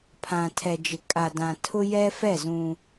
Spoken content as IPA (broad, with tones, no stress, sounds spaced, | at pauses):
pʰ ã˨ tʰ ɛ˨ d͡ʒ ɪ˨ kʼ a˨ d ã˨ tʰ ʊ˦ j ɛ˦ f ɛ˦˨ z ũ˦